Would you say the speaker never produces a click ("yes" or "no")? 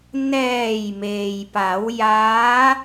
yes